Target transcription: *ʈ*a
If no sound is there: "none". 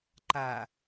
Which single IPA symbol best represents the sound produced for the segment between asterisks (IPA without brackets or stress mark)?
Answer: ǃ